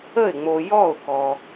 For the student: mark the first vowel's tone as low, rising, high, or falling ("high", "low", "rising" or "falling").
falling